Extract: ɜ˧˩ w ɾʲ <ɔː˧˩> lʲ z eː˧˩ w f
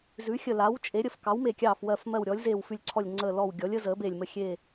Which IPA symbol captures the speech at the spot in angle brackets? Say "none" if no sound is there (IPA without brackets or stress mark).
ɔː˩˥